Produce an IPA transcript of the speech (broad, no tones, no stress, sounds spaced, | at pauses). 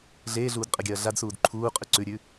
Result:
ɮ eː ɮ uː d qʼ ɐ ɡʲ ɐː ɮ a d s uː d ǃʰ uː qʼ ʉ ǀ ʉ ɾʲ ʉ